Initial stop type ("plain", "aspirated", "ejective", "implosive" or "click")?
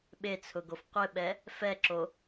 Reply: implosive